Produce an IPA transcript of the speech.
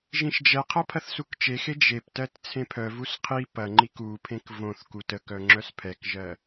ʒ ĩ ʃ d͡ʒ ɛ qʰ ɐ pʰ ɐ θ s u k t͡ʃ e x e d͡ʒ e p t ɜ t t͡sʰ ẽ pʰ œ v u s qʰ i p ɐ ŋ͡ǃ i k u pʰ ẽ k v õ θ k u t ə k œ ŋ͡ǁ œ s pʰ ɛ k ʒ ɜ

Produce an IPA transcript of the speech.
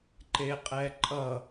ǃ e qʼ ɛ ǃʼ ʌ

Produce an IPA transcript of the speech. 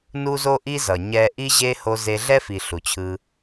n u˦ z o˦ ʔ i˦ z ʌ˨ ɲ ɛ˧ ʔ i˦ ʑ e˦ h o˧ z e˧ ɮ ɛ˦ f i˨ ɬ u˨ t͡ɕʰ ɯ˧

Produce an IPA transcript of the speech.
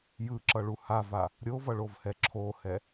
j ɯ ǁ ʌ ɭ u h a v a | ɾʲ o v ʌ ɭ o v h ɛ ǁʰ o h ɛ

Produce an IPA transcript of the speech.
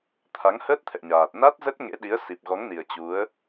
t̪ʰ a˨˦ ŋ h əː˦˥ t̚ t̪ʰ ɛ̰˧˨ ɲ aː˨˩ t̚ n a˦˥ t̚ z ə˦˥ t̚ ŋ ḛ˧˥ ɗ i˨˦ ə̯ s i˨˩ p̚ ɣ ɔ˨˦ ŋ n i˨˩ ə̯ t͡ɕ u˨˦ ə̯

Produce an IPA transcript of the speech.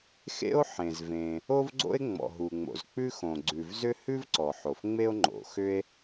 x ḛ˥ o̯ ħ ẽ˩ z v ẽ˩ | o˥ v ɡ͡ǀ o̰˥ e̯ ŋ͡m ɔ̰˩ ɦ u˩ ŋ͡m o̰˩ z k͡p ʉ˥ x õ˩ ɡ͡ǀ ʉ˩ v z ʏ˥ h ʉ˥ v ǀ ɔ˩ ħ o˩ f ŋ͡m e˥ o̯ ŋ͡ǃ o̰˩ x ʏ˥ e̯

